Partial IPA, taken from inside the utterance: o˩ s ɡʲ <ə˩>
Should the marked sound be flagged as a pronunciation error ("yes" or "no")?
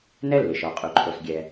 yes